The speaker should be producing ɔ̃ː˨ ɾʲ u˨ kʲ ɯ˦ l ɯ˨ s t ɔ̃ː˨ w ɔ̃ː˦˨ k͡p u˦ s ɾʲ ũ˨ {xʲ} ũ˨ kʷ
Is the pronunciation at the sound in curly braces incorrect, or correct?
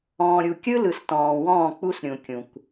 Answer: incorrect